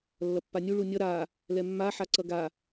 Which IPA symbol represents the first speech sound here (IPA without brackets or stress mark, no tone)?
lː